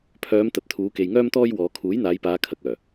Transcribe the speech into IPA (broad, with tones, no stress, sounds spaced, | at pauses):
pʰ œː˨˧ m t̪ ɐ˨ t̚ t̪ʰ uː˨˧ k e˨ j ŋ œː˥ m t̪ ɔː˥ j w ɔː˨˧ kʰ uː˨˥ j n̪ aː˨˧ j p aː˨˧ kʰ ɐ˨ k̚ œː˨˩